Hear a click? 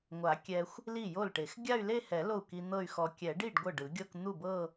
no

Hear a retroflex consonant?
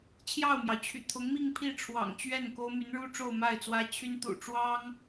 yes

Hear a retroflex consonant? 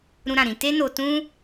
no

